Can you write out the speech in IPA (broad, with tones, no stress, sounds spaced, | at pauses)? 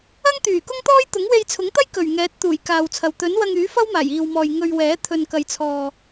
ɐ˥ ŋ t̪ yː˨˩ k ʊ˥ ŋ t̪ ɔː˥ j t̪ ʊ˨˥ ŋ w e˧ j t͡sʰ ʊ˨˥ ŋ t̪ ɐ˥ j k ɵ˨˩ ɥ ŋ ɛː˨˥ t̚ t̪ uː˨˩ j k aː˨ w t͡sʰ ɐ˨ w t̪ ɵ˨˥ n w ɐ˧ ŋ yː˨˥ f ɐ˥ w m aː˨˩ j iː˨ w m ɔː˨ j ŋ ɵ˧ ɥ w ɛː˨˥ t̪ʰ ɵ˨ n k ɐ˨ j t͡sʰ ɔː˨